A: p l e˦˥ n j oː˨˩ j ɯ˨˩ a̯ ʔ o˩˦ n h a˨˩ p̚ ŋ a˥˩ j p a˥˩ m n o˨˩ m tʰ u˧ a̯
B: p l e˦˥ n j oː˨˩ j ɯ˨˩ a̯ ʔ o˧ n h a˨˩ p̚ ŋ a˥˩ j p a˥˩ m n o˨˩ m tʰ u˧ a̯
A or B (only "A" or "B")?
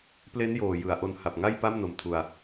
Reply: B